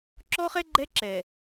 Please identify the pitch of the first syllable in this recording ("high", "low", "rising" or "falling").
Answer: high